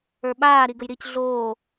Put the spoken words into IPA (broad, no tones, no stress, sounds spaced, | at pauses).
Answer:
ə˞ ɓ aː ɾ i ɡ ə j ɾ i c ɮ oː